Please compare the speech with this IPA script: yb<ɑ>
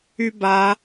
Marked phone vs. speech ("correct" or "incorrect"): incorrect